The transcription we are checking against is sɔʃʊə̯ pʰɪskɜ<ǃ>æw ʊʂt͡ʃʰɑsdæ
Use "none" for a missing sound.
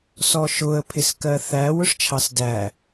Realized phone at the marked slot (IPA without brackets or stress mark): θ